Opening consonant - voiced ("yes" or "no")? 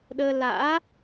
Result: yes